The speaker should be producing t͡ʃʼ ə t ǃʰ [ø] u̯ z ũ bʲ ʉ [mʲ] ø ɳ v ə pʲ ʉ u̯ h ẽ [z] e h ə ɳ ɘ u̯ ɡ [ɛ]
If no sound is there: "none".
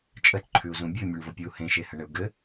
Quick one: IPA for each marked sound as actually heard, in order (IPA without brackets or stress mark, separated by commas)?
ʉ, mʲ, ʃ, ɘ